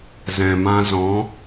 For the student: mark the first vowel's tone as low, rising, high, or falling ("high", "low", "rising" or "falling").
low